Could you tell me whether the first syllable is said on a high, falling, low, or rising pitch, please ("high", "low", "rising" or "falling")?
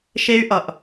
high